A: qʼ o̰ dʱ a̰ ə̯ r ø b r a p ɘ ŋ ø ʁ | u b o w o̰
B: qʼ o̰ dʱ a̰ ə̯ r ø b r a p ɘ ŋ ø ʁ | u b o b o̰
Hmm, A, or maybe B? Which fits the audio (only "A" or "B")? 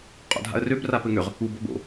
B